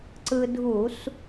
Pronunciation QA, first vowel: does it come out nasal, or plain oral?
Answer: oral